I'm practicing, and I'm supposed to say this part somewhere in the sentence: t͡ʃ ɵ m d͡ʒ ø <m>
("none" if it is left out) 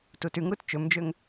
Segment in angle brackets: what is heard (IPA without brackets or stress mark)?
ŋ